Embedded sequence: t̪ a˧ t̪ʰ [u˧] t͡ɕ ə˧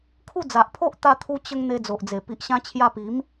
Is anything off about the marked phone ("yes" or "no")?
no